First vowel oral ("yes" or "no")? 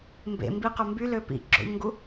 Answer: yes